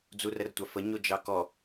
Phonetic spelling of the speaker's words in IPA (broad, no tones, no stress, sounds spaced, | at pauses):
d͡z u r ə r tʷ a f ə ɲ o d͡ʒ ɑ k ɔ